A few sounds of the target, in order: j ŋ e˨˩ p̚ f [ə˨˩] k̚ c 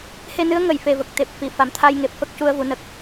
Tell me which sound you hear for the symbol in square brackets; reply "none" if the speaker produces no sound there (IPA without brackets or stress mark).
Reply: ə˦˥